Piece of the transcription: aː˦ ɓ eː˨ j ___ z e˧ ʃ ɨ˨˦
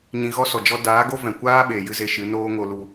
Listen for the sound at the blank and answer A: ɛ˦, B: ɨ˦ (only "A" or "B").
B